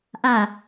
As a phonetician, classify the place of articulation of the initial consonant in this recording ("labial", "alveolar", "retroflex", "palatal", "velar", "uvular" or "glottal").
glottal